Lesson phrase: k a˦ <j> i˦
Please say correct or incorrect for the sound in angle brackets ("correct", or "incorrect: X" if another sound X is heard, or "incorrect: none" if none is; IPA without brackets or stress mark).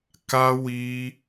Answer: incorrect: w